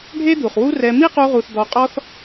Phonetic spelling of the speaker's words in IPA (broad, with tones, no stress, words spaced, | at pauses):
ɖʱe˦d̪u˨χwu˦rɛ˧ mi˦qu˧ʁu˨θ d̪ɔ˧qʼɔ˦θ